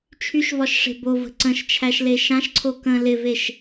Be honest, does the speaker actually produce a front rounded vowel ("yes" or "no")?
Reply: yes